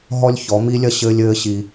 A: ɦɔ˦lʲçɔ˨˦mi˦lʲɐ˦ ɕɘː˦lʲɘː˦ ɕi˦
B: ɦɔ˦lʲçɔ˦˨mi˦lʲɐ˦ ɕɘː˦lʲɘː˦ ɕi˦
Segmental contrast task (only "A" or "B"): A